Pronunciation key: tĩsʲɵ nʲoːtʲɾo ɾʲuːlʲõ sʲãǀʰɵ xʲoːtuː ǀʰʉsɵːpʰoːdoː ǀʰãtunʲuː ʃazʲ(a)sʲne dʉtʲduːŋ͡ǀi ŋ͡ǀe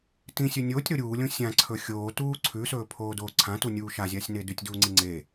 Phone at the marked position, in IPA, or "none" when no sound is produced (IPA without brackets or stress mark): a